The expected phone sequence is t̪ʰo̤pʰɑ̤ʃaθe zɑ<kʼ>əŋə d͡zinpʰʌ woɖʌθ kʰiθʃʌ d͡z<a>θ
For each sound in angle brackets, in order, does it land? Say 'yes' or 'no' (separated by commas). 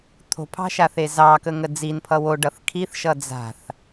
no, no